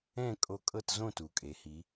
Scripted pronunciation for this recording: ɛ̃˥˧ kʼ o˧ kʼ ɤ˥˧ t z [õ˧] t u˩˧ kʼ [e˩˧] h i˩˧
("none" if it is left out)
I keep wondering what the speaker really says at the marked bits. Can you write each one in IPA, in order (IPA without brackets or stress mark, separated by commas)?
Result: õ˥˧, e˩˧